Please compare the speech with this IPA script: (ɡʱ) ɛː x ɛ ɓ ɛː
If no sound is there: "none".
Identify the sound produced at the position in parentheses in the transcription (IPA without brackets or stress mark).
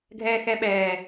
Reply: ɡʱ